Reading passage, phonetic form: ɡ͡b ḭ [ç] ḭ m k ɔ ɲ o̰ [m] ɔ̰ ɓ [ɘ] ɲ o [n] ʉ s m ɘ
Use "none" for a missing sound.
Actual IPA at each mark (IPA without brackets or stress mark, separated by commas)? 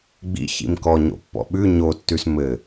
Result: ç, pː, ʉ, tː